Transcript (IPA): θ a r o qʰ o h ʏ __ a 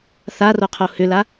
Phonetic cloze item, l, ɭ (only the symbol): l